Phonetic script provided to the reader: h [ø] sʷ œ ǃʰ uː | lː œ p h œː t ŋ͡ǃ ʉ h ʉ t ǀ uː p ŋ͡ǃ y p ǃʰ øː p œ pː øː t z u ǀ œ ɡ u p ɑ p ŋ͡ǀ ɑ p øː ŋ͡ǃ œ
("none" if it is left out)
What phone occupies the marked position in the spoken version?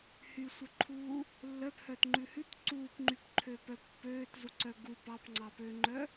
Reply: y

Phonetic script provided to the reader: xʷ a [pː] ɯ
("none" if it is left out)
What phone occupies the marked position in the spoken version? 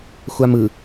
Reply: m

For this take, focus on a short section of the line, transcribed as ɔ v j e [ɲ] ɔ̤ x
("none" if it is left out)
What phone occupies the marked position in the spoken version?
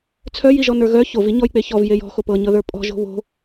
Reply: j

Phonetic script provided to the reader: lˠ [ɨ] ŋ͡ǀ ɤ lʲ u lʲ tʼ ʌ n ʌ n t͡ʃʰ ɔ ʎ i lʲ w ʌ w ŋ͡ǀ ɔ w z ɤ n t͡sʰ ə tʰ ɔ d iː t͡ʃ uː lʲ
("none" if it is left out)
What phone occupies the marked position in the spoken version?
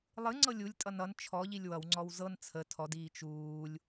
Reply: ɨ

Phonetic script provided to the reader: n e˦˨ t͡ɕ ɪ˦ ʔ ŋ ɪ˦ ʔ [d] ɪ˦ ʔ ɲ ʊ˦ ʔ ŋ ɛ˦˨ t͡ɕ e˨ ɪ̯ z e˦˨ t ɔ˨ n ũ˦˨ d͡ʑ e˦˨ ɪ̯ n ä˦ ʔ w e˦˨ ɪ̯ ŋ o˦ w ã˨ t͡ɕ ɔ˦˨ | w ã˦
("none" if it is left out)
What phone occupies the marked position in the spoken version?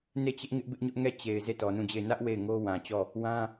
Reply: b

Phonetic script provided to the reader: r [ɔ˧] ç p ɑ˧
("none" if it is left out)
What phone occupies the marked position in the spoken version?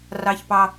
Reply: ɑ˧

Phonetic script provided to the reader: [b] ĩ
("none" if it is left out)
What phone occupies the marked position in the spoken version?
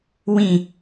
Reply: w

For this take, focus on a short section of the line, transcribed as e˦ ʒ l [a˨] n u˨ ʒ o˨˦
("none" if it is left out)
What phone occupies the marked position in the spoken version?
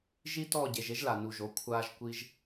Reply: a˨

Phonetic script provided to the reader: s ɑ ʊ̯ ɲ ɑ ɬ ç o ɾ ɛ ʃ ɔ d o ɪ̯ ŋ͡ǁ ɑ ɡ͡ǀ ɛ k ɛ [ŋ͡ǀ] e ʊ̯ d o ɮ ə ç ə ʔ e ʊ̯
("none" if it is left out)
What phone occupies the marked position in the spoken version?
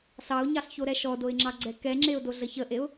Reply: ŋ͡ǁ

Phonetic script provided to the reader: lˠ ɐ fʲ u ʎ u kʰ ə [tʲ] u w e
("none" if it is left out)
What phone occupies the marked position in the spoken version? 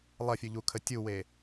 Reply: tʲ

